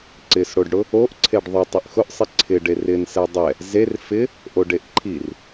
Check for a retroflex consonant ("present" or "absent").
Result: present